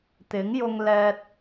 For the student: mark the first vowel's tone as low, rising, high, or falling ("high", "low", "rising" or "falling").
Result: rising